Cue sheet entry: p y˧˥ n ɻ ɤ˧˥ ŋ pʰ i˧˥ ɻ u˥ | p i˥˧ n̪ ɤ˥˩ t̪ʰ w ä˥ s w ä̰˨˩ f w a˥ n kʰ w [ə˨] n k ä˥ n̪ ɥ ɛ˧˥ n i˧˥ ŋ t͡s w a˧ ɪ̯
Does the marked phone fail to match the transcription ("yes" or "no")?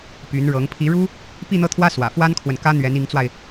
no